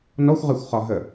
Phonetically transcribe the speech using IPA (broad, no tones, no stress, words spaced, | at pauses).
nɔxʷʁɛxʷχɒ ɦə